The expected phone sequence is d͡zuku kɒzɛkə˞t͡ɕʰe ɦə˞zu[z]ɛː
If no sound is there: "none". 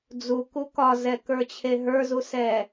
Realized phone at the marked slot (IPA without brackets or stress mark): s